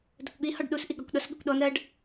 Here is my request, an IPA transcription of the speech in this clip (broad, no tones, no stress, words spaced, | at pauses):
dəkʷɠi hɒɖɗus ʔiɡɒkʷɗʌs ɠəkʷɗɔn ɜɖ